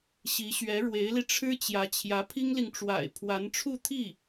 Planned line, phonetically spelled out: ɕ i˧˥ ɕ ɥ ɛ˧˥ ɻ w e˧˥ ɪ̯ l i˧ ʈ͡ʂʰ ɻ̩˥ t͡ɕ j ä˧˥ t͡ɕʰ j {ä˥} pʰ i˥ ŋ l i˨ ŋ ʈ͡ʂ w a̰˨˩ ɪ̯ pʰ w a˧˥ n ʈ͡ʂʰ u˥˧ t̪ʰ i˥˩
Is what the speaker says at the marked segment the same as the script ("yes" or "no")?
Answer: no